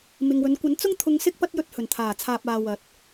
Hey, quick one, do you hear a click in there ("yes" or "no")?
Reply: no